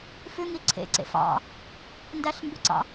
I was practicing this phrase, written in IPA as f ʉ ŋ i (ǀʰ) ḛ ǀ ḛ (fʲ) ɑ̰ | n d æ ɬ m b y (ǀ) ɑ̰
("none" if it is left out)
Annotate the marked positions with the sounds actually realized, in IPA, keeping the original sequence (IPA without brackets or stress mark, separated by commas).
ǀʰ, f, ǀ